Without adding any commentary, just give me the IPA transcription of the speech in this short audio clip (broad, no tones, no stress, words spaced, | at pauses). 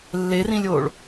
lːerĩlʲoːɭ